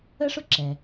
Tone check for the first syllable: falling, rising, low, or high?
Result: high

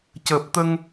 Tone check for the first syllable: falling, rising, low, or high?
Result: low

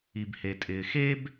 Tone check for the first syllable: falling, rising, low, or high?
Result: low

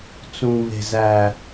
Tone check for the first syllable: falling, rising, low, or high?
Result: low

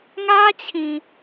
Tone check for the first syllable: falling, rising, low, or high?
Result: high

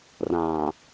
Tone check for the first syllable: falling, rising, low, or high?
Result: low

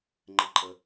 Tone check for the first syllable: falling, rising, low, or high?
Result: high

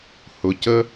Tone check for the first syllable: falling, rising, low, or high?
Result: low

